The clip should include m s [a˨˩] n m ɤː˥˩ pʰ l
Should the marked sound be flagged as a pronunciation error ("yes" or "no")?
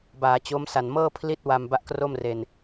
no